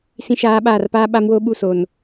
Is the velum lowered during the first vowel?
yes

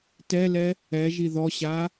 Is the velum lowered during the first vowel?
no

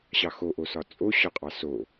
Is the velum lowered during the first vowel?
no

